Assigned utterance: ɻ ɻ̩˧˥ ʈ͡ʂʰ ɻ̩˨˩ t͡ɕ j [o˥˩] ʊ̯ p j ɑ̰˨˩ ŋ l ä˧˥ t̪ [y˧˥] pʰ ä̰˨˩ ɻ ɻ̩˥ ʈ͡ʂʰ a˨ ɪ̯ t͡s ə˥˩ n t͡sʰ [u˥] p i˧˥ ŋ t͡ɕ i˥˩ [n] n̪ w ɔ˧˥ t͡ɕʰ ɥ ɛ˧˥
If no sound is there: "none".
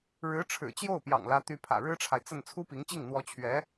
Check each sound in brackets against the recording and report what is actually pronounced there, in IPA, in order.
o˥˩, y˧˥, u˥, ŋ

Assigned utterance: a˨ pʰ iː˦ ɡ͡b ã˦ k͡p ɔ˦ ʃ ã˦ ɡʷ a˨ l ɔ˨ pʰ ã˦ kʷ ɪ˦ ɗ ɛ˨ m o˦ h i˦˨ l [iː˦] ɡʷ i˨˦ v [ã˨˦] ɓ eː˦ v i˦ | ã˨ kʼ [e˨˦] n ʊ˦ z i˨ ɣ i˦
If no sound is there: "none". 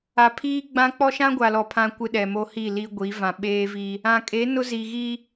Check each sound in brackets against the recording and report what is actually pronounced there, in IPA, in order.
i˦, ã˨, e˨˦

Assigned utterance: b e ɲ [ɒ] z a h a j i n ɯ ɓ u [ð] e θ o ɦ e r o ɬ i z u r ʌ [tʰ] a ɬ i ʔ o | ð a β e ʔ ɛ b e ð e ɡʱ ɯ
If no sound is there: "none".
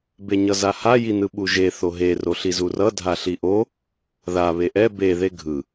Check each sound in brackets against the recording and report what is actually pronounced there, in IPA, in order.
ʌ, ʒ, dʱ

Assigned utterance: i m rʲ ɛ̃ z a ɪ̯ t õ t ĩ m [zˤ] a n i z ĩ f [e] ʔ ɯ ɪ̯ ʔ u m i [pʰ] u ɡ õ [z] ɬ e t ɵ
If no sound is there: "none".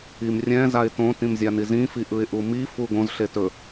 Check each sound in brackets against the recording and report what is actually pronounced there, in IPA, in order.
zʲ, i, f, z

